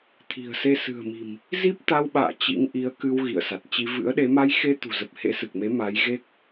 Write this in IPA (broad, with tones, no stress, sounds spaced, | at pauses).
t̪ʰ i̤˨˩ ə̯ s e˧ s ɨ̤˨˩ ə̯ m i̤˨˩ m | z i˦˥ p̚ t̪ a˧ w ɓ a̰ː˧˨ t͡ɕ ḭ˧˥ ŋ ʔ i˨˦ ə̯ k ɨ˧ w ɣ ḭ˧˨ ə̯ s a˨˩ t̚ t͡ɕ i˧ v ɨ̰˧˥ ə̯ ɗ e˨˦ m a˧ j x e˧ t̪ ṳ˨˩ z ə˨˩ p̚ h ḛ˧˥ s ɨ˨˩ k̚ m e˨˦ m a˨˦ j ɣ e˦˥ k̚